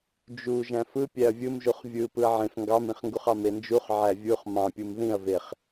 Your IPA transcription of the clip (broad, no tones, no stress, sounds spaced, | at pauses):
d͡ʒ u ʒ æ̃ f ɯ pʲ æ ɐ̯ vʲ ɯ m ʒ u χ vʲ ɯ p ɯ ɐ̯ ʕ ẽ f ŋ ɡ ɑ m ĩ χ ŋ ɡ u χ ɑ m e n d͡ʒ u χ ʕ æ vʲ u χ m ɑ̃ pʲ u m ð ĩ ɐ̯ v e χ